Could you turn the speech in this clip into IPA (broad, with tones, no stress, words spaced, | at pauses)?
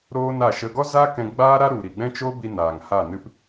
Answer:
ɾoː˦na˦˨ʃə˧ ɡɔ˦zaː˦ kɛ̃˧ ɡ͡baː˦ɾa˦ɾu˨ ɾi˨ɡ͡bɛ̃˦t͡ʃo˦bi˧ naː˨ŋha˦˨ nɨ˧p